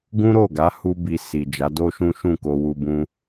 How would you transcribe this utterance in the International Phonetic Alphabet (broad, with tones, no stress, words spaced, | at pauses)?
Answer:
ɡũ˦ɾo˦˨ɡa˨˦ hu˦bi˧ si˨d͡ʒa˨˦ do˦ʃũ˦ ʃũ˦˨ko˧wu˧ bũ˧